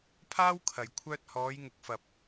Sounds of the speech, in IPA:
pʰaː˥wkʰɐ˨j kʷʰœː˧t̚hɔː˨˧jŋʊ˨k̚ fɐ˨p̚

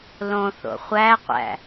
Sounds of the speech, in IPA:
lõθo̰ χʷæqʷæ̰

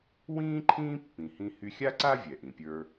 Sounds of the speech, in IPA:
wĩː˥ ǃʰĩː˥pːĩ˩hĩ˧ hy˧xʲa˥ǀa˥ vʲɛ˩ʔĩ˩pʲə˞˧

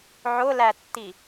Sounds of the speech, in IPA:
ʕʊlætːi

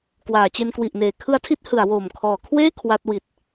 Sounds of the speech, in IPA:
kwaː˩˦t͡ɕe˧n kwi˨˩ʔneː˩˦ kʰɯ˦˥a̯tʰi˦˥t̚ hɯ˩˦a̯woː˨˩m kʰɔː˩˦kʰweː˥˩ kʰwa˦˥t̚ wi˨˩t̚

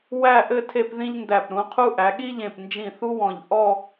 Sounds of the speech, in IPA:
wæ˥˧ʔɘ˥˧ tʰe˥˧pðĩ˥ʎndæ˧˩p ɾũ˩˧qʰu˥ ʔæ˩˧ɠi˥ʎẽ˧˩pnd͡ʒĩ˧˩ θu˥wɔ̃˧˩ʎ ʔɔ˥˧

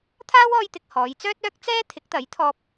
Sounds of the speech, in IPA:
t̪ʰaː˥wɔː˧jt̪ɪ˨k̚ hɔː˨˧jt͡sœː˥t̚œː˥k̚ t͡sɛː˥ t̪ʰɪ˨˥k̚t̪ɐ˨˥jt̪ʰɔː˧p̚

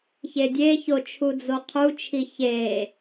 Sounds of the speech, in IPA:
çedʲeço t͡ʃʰud͡zoqʰut͡ʃʰi çe

